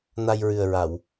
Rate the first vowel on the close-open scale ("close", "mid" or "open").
open